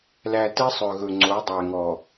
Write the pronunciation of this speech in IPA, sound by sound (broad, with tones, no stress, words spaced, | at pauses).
læ˨ tɛ˦sˤœ˨ɣɵ˨ŋ͡ǀo˨˦ dˤæ˨ŋɔ˨